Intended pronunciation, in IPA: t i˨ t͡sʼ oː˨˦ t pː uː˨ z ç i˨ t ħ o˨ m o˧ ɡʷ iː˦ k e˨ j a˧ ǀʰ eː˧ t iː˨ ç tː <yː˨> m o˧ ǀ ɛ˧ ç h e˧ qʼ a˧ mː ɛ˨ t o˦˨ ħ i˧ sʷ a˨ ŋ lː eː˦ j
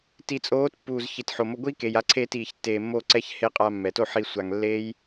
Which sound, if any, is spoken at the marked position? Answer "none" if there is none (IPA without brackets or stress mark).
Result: eː˨